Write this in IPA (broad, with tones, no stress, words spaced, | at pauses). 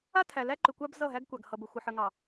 a˦ tʰæ˨læ˦ǃʏ˨kʷa˦b zʌ˦˨ɦæ˦ɡkʷa˨ɡ hʌ˨bə˨ xʷə˨ħə˨ŋɑ˨